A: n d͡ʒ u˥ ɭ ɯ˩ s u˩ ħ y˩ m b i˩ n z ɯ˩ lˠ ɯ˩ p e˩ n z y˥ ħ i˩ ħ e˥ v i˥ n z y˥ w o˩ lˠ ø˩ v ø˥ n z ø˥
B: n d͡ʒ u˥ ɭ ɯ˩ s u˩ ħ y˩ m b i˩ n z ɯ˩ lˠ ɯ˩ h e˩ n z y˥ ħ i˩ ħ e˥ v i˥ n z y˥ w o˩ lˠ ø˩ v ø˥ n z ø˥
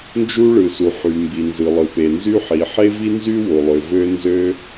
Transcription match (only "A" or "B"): A